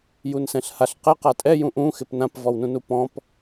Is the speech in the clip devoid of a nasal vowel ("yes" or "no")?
no